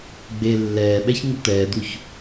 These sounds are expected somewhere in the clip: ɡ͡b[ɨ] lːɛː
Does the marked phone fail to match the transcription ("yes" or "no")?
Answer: yes